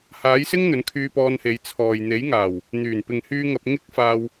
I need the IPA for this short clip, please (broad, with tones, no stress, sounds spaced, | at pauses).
h aː˨˥ j s ɪ˥ ŋ n̪ ɵ˨˥ n kʰ yː˧ p ɔː˧ n h e˨˧ j t͡sʰ ɔː˨ j n̪ e˨˥ j ŋ aː˨˩ w | n̪ yː˨˩ n p ɪ˨ ŋ h yː˧ ŋ ɐ˧ p̚ ŋ ɪ˥ k̚ f aː˧ w